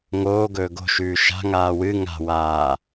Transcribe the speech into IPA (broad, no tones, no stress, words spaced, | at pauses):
ŋoːɡɵː ɡo̤ʃʉː ʃa̤ŋaː wɨ ŋa̤waː